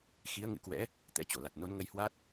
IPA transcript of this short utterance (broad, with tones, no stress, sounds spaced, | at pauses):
x i˨˦ ə̯ ŋ ɨ̰˧˥ k w ɛ̰˧˥ | t̪ ɛ̰˧˥ t͡ɕ o˧˩ l a˨˩ t̚ n o˨˦ n ŋ ə˧ j h w a˦˥ t̚